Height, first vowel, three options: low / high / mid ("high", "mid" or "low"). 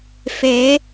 mid